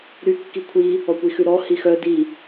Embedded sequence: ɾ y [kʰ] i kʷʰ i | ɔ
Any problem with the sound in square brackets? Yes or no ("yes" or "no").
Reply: yes